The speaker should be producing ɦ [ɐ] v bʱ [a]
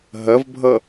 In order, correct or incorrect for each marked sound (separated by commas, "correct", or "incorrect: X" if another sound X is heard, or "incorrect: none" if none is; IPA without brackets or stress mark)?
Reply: correct, incorrect: ʌ